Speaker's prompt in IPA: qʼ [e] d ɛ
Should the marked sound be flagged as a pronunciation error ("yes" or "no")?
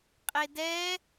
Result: no